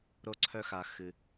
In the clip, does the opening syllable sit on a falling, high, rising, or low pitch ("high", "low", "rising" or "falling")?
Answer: high